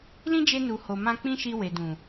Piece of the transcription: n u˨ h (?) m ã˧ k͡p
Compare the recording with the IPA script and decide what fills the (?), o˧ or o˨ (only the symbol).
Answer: o˨